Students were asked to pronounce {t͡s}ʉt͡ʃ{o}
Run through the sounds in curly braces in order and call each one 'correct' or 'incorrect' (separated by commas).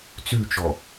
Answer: correct, incorrect